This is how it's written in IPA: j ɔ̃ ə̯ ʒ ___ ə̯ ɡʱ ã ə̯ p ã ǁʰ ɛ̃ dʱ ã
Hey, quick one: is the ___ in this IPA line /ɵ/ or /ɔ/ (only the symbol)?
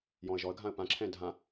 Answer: ɔ